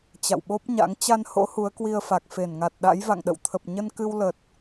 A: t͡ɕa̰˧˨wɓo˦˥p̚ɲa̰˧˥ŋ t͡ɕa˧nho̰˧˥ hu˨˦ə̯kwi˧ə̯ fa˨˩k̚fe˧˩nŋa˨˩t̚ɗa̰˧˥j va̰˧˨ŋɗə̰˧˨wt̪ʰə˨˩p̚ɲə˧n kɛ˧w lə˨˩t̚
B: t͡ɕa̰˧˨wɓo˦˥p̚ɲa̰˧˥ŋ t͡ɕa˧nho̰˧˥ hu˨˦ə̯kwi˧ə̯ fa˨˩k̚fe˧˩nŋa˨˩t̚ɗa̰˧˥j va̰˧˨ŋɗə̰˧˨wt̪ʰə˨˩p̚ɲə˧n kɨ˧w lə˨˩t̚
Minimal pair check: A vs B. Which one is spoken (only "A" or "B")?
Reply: B